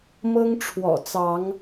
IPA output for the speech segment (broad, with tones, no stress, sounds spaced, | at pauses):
m ɤ˦ ŋ ʈ͡ʂʰ w ɔ̰˨˩ t͡s ɑ˨˦ ŋ